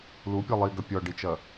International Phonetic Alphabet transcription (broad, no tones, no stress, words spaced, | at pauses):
lupʲɛ lˠiɡɐ pʲɔɖit͡ʃɐ